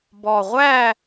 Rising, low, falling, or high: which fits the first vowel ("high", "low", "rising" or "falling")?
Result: low